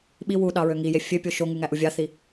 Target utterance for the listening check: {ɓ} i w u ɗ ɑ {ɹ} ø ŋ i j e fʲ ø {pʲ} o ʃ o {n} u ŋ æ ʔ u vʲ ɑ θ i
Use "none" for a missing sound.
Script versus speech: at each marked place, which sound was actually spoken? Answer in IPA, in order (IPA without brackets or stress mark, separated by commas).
ɓ, ɹ, pʲ, ŋ